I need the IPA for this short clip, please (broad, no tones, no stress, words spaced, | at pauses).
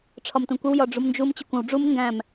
ʈ͡ʂʰɒmtũkʷɪw jɒɖ͡ʐumnd͡ʒum t͡ɕəkʷə̃w ɖ͡ʐum ŋɡæ̃m